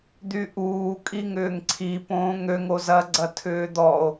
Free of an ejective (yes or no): no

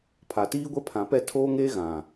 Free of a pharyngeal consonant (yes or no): yes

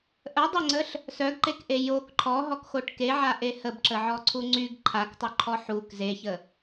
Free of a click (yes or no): no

